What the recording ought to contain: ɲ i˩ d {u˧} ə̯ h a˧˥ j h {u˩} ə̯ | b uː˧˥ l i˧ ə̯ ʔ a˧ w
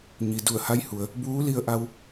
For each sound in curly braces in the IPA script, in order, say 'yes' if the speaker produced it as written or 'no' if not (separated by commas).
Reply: no, yes